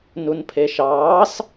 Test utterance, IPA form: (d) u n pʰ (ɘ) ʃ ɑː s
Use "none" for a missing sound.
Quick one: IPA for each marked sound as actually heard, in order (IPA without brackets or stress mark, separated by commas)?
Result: n, e